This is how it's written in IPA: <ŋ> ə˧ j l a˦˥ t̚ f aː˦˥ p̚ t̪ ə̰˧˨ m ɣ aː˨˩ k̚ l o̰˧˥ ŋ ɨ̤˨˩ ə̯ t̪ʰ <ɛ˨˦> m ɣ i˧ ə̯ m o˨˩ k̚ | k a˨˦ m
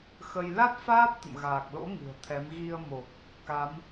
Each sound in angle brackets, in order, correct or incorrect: incorrect: x, correct

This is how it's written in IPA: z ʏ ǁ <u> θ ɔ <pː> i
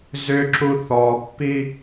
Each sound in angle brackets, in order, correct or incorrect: correct, correct

